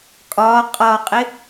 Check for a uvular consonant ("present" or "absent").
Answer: present